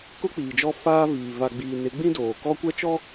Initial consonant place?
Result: velar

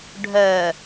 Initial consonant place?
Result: retroflex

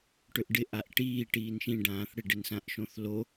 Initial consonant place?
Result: retroflex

